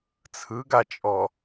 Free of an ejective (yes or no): no